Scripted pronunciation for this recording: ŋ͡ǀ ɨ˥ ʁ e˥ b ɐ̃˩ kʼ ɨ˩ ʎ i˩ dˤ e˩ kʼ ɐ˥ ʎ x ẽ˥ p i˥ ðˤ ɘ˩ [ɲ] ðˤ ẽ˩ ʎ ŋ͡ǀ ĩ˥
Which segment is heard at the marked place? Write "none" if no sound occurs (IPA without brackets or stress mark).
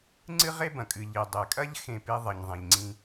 ɲ